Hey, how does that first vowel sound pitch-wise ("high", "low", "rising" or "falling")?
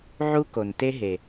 high